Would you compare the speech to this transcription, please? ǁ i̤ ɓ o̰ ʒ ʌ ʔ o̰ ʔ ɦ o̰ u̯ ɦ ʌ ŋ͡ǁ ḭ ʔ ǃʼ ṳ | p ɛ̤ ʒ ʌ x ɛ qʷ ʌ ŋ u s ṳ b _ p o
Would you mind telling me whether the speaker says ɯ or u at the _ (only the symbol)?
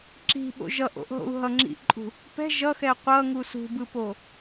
ɯ